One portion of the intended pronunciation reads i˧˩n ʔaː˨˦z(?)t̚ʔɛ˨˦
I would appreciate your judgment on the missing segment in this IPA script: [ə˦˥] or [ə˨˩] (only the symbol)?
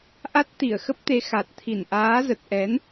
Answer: ə˨˩